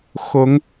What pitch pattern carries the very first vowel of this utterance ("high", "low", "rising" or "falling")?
rising